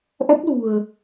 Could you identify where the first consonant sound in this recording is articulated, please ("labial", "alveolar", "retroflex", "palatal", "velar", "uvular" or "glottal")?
glottal